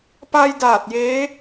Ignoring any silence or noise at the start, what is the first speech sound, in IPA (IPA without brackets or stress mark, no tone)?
p